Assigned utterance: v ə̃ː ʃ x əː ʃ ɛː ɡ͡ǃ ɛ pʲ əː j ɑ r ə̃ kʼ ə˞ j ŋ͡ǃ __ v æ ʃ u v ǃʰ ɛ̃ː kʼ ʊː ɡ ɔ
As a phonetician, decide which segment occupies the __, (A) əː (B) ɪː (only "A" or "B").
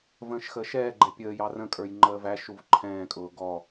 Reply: A